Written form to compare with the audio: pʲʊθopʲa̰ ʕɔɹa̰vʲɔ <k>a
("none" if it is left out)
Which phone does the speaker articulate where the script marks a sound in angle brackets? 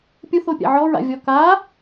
k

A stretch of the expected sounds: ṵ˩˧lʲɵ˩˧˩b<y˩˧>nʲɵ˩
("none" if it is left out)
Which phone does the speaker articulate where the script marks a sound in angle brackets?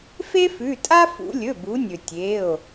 u˩˧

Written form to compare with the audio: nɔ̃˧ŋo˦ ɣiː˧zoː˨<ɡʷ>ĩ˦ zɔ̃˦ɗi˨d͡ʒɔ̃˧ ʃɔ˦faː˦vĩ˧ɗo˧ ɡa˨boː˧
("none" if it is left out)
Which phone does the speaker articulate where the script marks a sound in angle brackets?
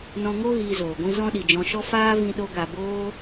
ɡʷ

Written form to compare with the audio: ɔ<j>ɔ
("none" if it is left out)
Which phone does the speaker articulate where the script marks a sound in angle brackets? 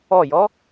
j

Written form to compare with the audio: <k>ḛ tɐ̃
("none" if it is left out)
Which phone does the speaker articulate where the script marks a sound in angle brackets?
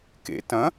k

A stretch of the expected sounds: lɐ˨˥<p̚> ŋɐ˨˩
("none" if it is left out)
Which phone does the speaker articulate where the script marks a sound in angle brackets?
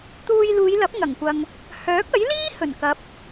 p̚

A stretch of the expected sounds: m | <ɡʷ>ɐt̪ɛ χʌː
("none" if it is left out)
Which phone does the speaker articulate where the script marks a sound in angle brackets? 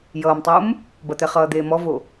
b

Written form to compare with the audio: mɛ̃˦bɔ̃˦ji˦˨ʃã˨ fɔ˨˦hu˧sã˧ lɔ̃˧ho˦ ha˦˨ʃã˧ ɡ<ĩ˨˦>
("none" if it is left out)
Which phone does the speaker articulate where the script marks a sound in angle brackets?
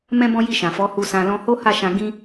ĩ˦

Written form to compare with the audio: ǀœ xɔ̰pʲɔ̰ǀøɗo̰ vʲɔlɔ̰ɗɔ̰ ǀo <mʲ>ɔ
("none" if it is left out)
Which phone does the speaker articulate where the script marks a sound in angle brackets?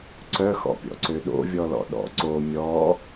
mʲ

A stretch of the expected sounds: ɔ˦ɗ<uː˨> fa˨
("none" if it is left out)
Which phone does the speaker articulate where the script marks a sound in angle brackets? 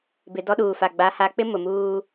uː˨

